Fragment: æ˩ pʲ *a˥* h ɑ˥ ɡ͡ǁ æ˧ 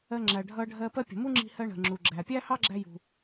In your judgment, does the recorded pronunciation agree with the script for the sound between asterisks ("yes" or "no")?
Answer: no